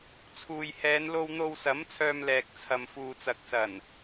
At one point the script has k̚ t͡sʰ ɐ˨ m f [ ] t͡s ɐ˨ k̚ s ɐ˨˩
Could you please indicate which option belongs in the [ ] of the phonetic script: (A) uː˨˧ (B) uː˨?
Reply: B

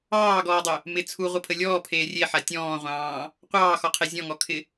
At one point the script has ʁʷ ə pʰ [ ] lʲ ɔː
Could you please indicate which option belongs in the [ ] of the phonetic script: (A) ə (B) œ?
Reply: A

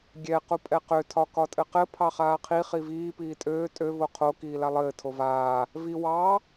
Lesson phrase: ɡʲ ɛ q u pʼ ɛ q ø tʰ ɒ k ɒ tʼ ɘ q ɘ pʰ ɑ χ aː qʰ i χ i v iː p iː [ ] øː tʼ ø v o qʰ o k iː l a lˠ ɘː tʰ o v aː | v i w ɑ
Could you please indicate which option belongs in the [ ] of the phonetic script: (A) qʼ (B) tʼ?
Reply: B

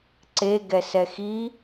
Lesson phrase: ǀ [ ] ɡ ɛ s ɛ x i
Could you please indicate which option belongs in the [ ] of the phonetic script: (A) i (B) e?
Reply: B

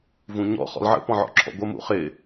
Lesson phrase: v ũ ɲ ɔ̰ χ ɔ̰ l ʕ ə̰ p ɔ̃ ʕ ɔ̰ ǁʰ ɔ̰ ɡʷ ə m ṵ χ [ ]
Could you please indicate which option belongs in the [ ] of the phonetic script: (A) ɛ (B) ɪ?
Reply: B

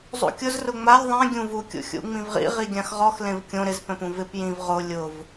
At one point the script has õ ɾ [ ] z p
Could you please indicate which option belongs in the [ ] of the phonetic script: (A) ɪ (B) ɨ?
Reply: A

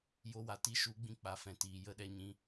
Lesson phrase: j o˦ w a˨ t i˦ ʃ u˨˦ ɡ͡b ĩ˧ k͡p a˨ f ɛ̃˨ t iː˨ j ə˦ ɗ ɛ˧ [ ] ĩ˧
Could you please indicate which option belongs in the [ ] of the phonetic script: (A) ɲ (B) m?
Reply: A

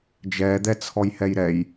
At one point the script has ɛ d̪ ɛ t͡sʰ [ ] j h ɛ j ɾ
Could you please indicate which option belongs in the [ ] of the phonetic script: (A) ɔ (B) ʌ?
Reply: A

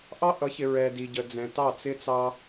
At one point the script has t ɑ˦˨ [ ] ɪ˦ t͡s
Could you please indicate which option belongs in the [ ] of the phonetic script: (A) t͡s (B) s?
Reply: A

